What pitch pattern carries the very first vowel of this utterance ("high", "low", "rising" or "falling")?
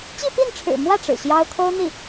falling